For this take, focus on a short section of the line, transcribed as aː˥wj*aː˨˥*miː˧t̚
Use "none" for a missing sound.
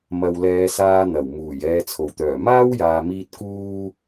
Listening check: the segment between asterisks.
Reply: aː˨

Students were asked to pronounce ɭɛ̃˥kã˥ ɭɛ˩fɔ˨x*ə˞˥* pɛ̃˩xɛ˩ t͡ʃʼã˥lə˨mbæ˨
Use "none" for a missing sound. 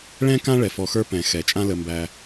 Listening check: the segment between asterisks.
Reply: ə˞˥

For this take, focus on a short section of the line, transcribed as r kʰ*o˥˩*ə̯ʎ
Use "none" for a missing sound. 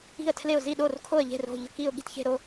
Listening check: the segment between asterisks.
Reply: o˥˩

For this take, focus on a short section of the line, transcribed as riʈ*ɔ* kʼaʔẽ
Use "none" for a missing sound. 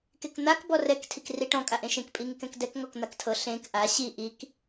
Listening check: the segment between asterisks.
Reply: ɔ̃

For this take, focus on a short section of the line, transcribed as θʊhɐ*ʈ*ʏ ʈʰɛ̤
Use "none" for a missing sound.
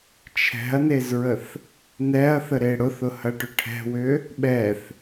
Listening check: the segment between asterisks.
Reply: ʈ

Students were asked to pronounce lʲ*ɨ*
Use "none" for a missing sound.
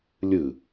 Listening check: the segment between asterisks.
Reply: ɨ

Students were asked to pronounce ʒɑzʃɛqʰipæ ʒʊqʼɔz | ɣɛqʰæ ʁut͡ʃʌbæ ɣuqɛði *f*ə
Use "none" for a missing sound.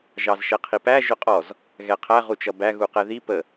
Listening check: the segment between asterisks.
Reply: p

